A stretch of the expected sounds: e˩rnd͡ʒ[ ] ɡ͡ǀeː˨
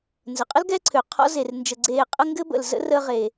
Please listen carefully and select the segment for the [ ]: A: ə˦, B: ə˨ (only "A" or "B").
B